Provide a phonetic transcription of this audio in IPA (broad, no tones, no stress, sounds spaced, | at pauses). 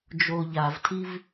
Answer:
d͡ʒ o ʎ a v tʰ i v